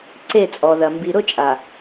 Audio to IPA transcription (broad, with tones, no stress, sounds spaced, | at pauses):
ǀ e˦˨ t͡sʼ ɔ˨ ð ɐ˨ m b i˨ ɾ ʊ˦ t͡ʃʼ a˨